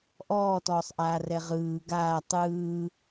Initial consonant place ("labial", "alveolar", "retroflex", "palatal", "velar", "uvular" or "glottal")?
glottal